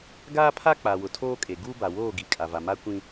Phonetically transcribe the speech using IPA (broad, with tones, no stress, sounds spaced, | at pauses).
ɡ aː˦ pʰ a˦ k͡p a˨ w ʊ˨ tʰ oː˦ kʼ e˨ ɡ u˦ b a˨ w oː˦˨ ɡ i˨ kʼ a˨ v a˨ m a˦ kʷ ĩ˦